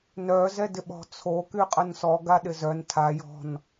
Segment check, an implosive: present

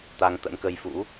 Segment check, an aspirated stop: absent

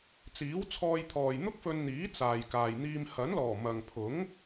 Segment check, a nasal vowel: absent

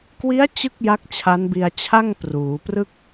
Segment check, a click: absent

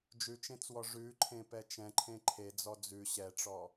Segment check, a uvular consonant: absent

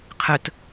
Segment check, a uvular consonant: present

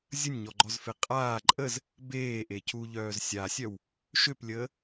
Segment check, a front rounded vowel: present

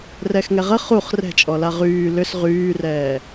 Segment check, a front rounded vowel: present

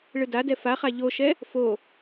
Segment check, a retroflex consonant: present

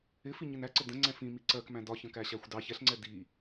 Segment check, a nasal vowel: present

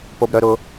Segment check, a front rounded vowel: present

